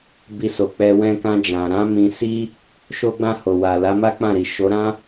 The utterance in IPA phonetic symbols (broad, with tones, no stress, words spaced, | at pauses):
bi˧so˨k͡pɛ˧ wɛ̃˧kã˧d͡ʒã˨ɾã˨˦ mĩ˧si˦ | ʃo˧ɡ͡bã˧ ho˨wa˨ la˨˦ma˦k͡pã˦˨ɾi˨ ʃo˨˦ɾã˦